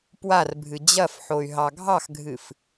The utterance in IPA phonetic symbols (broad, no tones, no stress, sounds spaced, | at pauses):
p w a r bʱ ɨ d͡ʑ ɐ f ħ o y̯ ɦ ɑ ɡʱ ɑ x ɡʱ ɨ f